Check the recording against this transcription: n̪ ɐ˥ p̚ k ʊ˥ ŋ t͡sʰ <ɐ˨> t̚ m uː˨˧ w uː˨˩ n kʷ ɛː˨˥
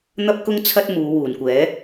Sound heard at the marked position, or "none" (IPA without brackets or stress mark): ɐ˥